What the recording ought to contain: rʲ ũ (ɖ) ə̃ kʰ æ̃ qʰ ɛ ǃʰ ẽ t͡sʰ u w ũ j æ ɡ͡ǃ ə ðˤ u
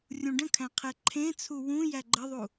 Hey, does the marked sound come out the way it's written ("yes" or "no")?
yes